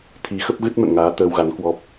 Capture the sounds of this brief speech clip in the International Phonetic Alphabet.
t̪ʰi˨˦xə˦˥p̚ɣɨ˦˥t̚ mə̰˧˨nŋaː˨˦ t̪əː˧wɣa˨˦nkwɔ˦˥p̚

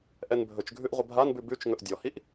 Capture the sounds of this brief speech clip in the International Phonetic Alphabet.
ʔɛnbʱɵt͡ʃɡʱʉʔ ʁʷəbʱanbʉ bʉt͡ʃ ŋɵʔdʲɔhiʔ

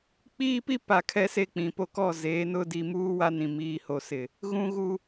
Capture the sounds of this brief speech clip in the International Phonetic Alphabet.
k͡piː˦pi˦pa˨ kʰɛ˦se˦k͡pĩ˨po˦ kɔ˦˨zeː˨˦nʊ˦ di˨muː˦ wa˦nĩ˨ miː˨ho˨sɪ˨ | ɣũ˦ɣu˦

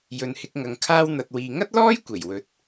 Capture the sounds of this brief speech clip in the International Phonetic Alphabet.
jɵ˨nhɪ˧k̚ŋɐ˨ŋ kʰaː˧wn̪ɐ˨t̚wiː˨ ŋɐ˥t̚lɔː˥j kʷe˨˩jwɵ˨˥t̚

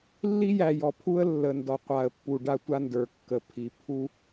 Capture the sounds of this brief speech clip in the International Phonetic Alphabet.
lːi˦jæ˨jɔ˨pʰu˦ə̯ lːə˨ndɔ˨qʷa˨ə̯ pːu˨ɖa˦tʷa˦ndə˞˨ kːə˨pʰi˨ pʰu˦

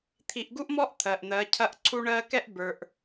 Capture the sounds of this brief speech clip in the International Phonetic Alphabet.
t̪ʰi˨ʔ ɡu˦ʔmɔ˦ʔ t̪ʰɜ˨ʔn̪ɜ˨˦cʰɐ˦ʔ ǀʰu˦ɳɜ˦ kɛ˦ʔbə˞˨ʔ

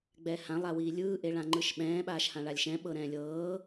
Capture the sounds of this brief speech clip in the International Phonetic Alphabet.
ɡ͡bɛːhãlˠ awiːlʲɯː ʔeɭãŋ͡ǃɯʃɓɛ̃ː ɓaːʃhãɭalʲʃɛ̃ ɓɤɾɛ̃ːlʲɤː

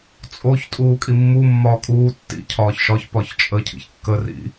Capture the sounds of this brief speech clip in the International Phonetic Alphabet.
t͡sʼoç tʼuːkʼimːu mːɒːkʼuː tːḭ cʰɒːçʃɒç pɒçt͡ʃʼə cʰḭçkːə rḭ

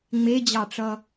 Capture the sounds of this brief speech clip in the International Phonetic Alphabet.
ŋ͡med͡ʑɑʈ͡ʂʌ

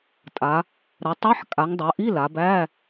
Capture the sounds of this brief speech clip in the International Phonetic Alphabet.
tʼa˩˧ | ɾɐ˩˧tˤɛ˧˥˧ħ kʼa˩˧ŋdˤɐ˩˧ʔi˧˥˧ la˩˧bæ˧˥˧

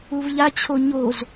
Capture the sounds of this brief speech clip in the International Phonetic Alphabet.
uvʎat͡ɕʰo ɲoz

